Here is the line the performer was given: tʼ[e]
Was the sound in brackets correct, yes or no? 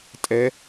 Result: no